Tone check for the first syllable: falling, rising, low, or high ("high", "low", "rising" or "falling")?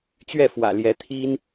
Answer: falling